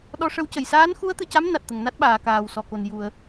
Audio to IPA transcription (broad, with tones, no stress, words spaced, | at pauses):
ɗɔ˧˥ʂə˧˥wcə˨˩˨j saː˧˥nxu˧˥ə̯t̪ɨ˨˩˨ca˧˥m na˨˩t̚t̪ə˨˩˨ŋna˦˥t̚ ɓaː˨˩˨kaː˨˩wsɔ˨˩ko˨˩n ju˨˩˨ə̯